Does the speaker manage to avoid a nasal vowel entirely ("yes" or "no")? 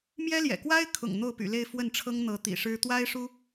yes